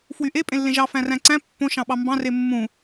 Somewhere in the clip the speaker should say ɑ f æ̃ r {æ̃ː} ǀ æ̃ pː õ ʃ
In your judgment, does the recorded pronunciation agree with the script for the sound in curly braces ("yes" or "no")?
no